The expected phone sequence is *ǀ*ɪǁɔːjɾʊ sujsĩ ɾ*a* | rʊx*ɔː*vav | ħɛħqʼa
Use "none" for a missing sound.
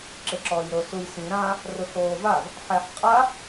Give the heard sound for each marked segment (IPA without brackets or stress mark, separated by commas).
ǁ, ã, oː